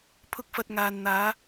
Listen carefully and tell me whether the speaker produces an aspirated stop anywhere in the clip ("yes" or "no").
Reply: yes